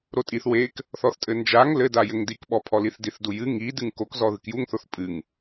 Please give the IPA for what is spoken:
ɾ o tʼ i θ w e k | θ ɔ θ tʼ ɘ n d͡ʒ a ŋ l ɘ d a j ɘ ŋ d i k ɓ ɔ pʰ ɔ l i θ d i θ d u j ɨ ŋ i d ɨ ŋ k o k z ɔ ð ɨ k j u ŋ θ o θ pʼ ɨ ŋ

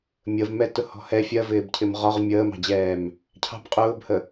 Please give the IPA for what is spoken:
mʲ ə v m ɛ t ʊ h ɔ̤ h ɛ fʲ ɜ v ɪː b cʰ ɪ m ʁ ɒ ʁ mʲ əː m ɑ̤ d͡ʑ ɛː m | cʰ ɑ̤ b qʼ ʊː b h ə

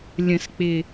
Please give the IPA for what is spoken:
lʲ ə̃˨˩˦ s k͡p ɪ˨˩

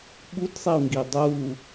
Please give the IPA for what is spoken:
ɓ u d sˤ i u̯ ŋ ɡ i dˤ u

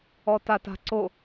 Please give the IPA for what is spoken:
ɔ t a t a̤ ǀ o

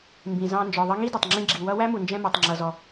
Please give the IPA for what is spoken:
m b ĩ˩ z ɑ̃˧ n d͡ʒ ɔ˩ ðˤ ʌ˧ ŋ i˥ d ʌ˩ tˤ ŋ͡ǁ ĩ˧ ɡ͡ǁ i˩ w ʌ˧ w æ˥ m u˩ n d͡ʒ ɛ̃˧ m ɔ˩ tˤ ŋ͡ǁ ʌ˩ z ɔ˩

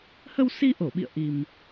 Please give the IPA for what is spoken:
h ə˧ w s i˧ ʔ o˧˩ ɓ ḭ˧˨ ə̯ ʔ i˨˩ m

